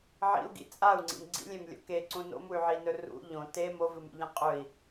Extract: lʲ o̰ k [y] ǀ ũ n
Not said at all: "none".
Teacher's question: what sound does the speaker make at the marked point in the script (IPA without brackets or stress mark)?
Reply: e